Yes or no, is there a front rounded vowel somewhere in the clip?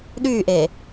yes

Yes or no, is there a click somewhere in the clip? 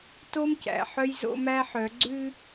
yes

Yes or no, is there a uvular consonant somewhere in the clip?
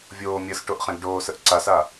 yes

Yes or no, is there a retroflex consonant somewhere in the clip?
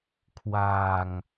no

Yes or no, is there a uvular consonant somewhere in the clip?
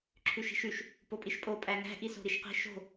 yes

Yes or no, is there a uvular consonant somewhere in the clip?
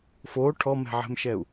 no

